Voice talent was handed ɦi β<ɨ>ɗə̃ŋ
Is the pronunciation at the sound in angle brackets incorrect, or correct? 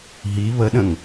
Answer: incorrect